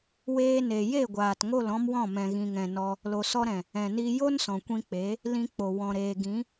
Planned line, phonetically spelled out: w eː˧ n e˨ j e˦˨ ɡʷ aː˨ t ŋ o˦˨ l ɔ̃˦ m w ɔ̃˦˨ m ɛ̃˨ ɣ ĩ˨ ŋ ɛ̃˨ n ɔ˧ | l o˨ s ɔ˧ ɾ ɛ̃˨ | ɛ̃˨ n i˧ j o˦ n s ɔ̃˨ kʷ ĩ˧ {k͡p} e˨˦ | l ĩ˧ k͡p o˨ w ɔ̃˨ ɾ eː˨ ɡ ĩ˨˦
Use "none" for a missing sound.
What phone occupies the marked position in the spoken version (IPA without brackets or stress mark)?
k͡p